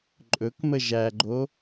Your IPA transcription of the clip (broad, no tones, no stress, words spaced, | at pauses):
ǃʼɵkmə ʒæɡ͡ǃo